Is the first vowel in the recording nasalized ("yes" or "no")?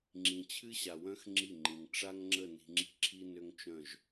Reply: yes